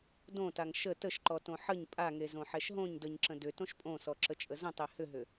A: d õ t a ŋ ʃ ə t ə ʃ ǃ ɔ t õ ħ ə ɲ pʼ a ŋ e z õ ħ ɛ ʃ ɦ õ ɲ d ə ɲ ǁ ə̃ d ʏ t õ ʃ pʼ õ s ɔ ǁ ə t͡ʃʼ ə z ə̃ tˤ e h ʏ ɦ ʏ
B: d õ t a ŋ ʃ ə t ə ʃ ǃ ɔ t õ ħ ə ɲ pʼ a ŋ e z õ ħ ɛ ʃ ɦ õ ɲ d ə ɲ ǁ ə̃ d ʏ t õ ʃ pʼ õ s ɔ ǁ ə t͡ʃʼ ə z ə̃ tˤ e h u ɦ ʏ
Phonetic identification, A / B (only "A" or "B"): A